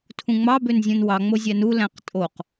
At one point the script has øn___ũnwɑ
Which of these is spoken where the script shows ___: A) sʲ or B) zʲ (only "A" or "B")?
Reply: B